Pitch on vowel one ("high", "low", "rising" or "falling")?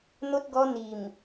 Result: high